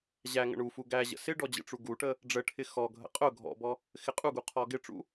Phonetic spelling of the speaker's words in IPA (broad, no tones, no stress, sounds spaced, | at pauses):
ʑ æ ŋ ə̰ ɳ u f u ɡ æ ʑ ə̰ s ɪ ɖ ɔ d͡ʑ ə̰ ʈ͡ʂ u ɡ u ʈ ə | ɖ͡ʐ ə ʈʰ ɪ x ɔ ɡʱ ə̰ qʼ ʊ ɡʱ ɔ̰ b ɔ | x ɪ qʼ u ɡ u qʰ ɔ ɡ ɪ ʈ͡ʂ ṵ